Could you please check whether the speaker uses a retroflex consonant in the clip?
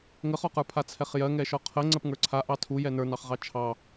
no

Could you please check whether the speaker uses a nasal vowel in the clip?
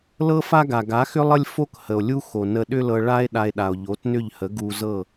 no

